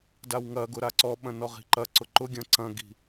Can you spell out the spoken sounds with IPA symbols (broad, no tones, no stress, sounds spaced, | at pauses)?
d a w ŋ ɐ ɡ ʊ ɾ a ǀ ɔ ɓ ɐ̃ n ɔ ʁ i̤ ǃ ɐ ǀ ʊ ǃ ʊ ɡʲ ɐ̃ ǀ ɐ̃ ɡ i̤